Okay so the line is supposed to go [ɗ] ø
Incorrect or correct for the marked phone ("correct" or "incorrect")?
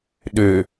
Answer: correct